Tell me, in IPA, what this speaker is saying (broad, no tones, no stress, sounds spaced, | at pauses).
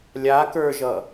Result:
lʲ a k ə˞ ʒ ʌ